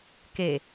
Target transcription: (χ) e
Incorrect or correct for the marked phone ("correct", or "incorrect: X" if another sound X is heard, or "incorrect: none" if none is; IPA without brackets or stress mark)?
incorrect: k